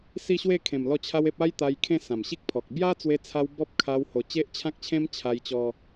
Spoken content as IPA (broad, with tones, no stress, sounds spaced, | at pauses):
s i˥˧ ɕ w e˥˧ kʰ ẽ˨˩ m l ɔ˥˧ t͡ɕʰ a˦ w e˦ p̚ a˦ j t̪ a˧ j kʰ ẽ˥˧ s ã˨˩ m ɕ i˦ k̚ pʰ ɔ˨ k̚ b j a˦ t͡s w e˧ t͡sʰ a˧ w b ɔ˦ p̚ kʰ a˧ w h o˨˩ t͡ɕ e˦ ʔ t͡ɕʰ ã˦ k̚ t͡ɕʰ ẽ˦ m t͡ɕʰ a˧ j t͡ɕ ɔ˧